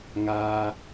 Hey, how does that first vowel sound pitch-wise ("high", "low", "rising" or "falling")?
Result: high